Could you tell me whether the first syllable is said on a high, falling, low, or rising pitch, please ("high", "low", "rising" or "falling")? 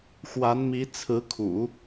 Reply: rising